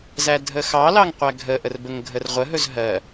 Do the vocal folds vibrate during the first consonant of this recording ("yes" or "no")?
yes